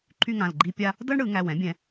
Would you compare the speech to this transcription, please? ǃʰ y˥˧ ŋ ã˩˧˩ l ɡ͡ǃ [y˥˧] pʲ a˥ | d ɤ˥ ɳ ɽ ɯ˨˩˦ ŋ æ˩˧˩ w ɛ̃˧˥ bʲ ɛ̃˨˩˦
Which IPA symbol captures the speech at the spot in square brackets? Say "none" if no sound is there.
i˥˧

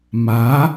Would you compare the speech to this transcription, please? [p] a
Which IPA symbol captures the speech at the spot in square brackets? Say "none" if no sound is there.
m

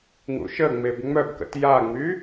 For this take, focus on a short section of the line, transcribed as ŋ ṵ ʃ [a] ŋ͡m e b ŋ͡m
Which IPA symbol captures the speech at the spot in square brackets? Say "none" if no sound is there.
ə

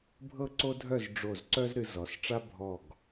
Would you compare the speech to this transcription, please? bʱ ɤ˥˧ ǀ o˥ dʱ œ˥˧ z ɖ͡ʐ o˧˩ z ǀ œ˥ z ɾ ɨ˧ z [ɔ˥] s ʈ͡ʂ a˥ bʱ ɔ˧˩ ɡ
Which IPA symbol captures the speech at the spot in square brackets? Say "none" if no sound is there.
ɔ˩˧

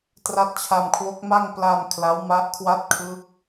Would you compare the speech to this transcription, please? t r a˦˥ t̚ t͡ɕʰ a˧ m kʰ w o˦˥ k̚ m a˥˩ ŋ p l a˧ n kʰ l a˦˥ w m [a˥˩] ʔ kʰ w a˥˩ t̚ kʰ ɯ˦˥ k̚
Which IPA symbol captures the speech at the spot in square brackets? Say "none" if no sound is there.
a˦˥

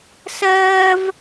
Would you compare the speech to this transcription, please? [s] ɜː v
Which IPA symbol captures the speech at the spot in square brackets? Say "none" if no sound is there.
s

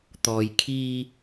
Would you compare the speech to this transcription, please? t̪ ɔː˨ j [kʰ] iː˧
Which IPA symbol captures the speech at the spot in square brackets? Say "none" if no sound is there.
kʰ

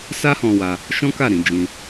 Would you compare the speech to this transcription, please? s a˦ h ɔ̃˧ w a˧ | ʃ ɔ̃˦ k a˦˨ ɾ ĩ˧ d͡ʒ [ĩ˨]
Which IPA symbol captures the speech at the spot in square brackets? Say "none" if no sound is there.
ĩ˧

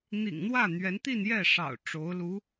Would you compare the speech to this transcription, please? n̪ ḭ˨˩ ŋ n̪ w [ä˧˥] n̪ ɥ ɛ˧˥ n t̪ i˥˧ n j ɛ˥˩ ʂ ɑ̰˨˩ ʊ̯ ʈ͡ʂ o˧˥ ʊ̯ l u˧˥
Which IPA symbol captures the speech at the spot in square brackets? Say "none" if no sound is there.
ä˥˩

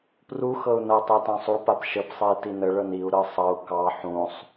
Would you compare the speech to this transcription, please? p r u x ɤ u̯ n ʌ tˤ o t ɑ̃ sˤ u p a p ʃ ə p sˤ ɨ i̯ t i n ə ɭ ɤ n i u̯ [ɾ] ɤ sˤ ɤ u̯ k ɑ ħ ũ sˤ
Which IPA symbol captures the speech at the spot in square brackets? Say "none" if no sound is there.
ɾ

